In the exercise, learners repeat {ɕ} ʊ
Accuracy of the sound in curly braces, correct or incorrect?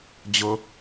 incorrect